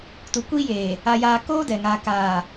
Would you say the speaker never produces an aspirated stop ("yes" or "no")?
yes